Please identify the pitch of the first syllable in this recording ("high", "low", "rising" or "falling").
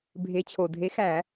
rising